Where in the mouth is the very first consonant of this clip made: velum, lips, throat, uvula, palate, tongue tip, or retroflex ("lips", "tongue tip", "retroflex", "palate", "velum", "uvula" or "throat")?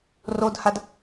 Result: tongue tip